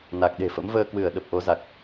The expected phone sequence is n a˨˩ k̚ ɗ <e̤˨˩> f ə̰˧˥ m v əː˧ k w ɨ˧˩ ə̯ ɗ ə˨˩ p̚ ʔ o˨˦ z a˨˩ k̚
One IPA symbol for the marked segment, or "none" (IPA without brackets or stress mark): e̤˨˩